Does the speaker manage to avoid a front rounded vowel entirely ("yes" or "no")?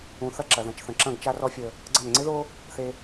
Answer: yes